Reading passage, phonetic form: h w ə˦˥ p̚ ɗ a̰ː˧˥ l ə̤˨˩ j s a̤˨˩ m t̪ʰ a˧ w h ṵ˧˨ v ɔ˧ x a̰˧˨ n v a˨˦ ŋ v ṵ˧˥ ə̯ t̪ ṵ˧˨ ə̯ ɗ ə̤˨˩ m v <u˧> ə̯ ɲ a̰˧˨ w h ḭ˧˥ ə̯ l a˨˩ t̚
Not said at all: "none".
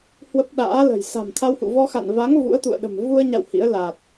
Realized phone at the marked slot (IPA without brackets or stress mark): u˧